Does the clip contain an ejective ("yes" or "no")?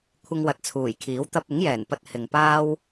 no